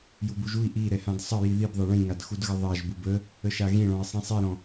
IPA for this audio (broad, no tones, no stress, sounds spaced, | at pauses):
j u b u ʒ u i̯ ʔ i ɾ ɛ h ã d sˤ ə j i ð i b ðˤ ɛ ɭ ĩ ŋ a d x u d ɣ ə ðˤ a ʒ b u b ə | ə ʃ a ɣ ĩ ɭ ɔ̃ i̯ sˤ ĩ sˤ i ɾ ɔ̃